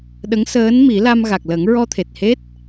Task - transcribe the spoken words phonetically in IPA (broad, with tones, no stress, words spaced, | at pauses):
ɗə˧˥ŋsəː˧˥nmi˨˩˦la˧m ɣa˨˩k̚lə˨˩˦ŋɹɔ˧t̪ʰe˨˩t̚ he˦˥t̚